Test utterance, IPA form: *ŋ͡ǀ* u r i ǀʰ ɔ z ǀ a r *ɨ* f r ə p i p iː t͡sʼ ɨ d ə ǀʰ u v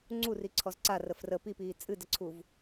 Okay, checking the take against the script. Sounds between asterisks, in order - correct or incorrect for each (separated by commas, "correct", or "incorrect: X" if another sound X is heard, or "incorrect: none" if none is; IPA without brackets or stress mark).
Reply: correct, incorrect: ə